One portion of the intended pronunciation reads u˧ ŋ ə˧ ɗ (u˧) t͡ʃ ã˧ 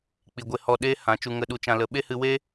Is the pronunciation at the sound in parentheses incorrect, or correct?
correct